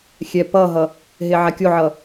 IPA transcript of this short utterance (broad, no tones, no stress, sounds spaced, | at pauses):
xʲ ɛ p ʌ ɦ ʌ | ɦ e ʕ a kʲ o ʕ ʌ